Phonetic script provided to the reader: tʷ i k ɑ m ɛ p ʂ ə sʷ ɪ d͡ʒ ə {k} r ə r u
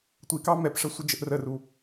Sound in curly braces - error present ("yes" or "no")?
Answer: yes